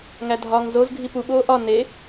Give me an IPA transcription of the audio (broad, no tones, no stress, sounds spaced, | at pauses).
ŋ æ dʱ ɒ ŋ z o z ɡʱ i p u ɓ oː ʔ ɒ n e